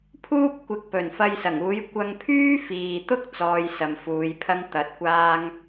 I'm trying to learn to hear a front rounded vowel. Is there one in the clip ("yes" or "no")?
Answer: yes